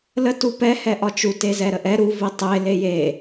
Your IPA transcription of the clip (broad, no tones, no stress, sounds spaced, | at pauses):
l ə t u p ɛ h ɛ ʔ ɒ t͡ʃ u t e z ɛ ɾ ə ʔ ɛ ɾ u v i tˤ e l e j e